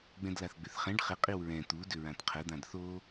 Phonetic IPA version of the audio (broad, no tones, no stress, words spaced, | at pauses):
ɡ͡bɛ̃dlaθɡ͡bʏθχɛ̃ɖ χɪ qʼiwɹɛ̃ t̪u dʏɹãtqʰə d̪ãdθo